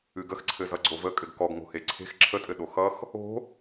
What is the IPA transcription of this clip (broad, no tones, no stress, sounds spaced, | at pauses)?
ɨ ɡ ə x ǀʰ ɘ z ʌ ɡ͡ǀ o v ə kʼ ɘ ɡ k ɔ ɡ ŋ o̤ h e ǀʰ e̤ x ǁʰ ə tʼ ɘ ɗ o x ʌ x | o̤